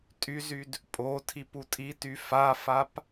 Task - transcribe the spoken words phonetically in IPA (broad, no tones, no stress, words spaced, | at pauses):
tʼyzyd | pʼo tʰiputʼity fafap